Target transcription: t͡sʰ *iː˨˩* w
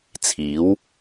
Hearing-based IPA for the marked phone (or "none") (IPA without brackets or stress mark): iː˨˥